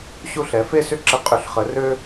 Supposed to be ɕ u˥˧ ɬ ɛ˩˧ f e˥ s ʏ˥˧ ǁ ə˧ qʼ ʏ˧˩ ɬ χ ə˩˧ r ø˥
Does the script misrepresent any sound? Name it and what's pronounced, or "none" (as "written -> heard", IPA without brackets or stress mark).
none